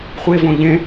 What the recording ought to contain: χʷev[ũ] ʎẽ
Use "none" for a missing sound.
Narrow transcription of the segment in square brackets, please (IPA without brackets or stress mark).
õ